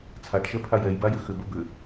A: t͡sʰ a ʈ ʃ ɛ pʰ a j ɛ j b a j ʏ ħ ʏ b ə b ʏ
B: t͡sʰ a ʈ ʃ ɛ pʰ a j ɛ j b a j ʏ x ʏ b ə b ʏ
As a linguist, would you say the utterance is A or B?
B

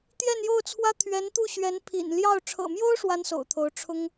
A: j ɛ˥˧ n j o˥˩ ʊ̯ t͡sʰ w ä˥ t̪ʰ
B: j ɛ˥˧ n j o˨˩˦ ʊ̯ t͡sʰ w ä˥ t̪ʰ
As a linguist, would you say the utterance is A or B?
A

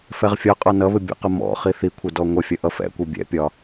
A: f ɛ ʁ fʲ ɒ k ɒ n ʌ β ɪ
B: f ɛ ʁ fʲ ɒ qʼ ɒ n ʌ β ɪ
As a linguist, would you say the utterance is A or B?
B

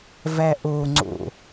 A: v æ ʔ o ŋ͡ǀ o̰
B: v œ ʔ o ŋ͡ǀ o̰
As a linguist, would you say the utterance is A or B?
A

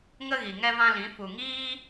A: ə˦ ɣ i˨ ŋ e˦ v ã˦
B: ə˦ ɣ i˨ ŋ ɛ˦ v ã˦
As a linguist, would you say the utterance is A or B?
B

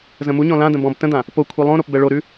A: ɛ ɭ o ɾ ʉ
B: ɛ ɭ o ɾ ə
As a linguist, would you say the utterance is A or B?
A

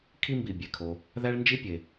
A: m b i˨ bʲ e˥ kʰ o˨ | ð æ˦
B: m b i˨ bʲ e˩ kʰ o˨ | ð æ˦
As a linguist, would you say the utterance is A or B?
B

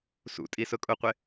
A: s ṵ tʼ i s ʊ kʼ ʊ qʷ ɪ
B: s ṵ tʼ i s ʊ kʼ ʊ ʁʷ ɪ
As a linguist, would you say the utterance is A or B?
A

